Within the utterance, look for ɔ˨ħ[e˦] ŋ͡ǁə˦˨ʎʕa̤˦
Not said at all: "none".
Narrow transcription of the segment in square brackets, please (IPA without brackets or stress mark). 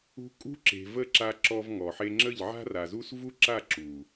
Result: e˦